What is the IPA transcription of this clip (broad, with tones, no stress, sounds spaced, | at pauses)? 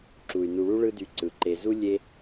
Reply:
ǁ u˩ y̯ n u˨ ɭ u˥ ɭ ɯ˦ d y˨ ǀ ɯ˩ ǃ e˨ z u˥ lʲ e˥